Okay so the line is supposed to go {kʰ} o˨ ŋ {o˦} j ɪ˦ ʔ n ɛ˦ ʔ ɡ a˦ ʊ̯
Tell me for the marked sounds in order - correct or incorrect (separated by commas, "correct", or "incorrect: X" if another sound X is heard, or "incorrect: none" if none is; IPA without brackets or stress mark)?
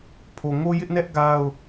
incorrect: pʰ, correct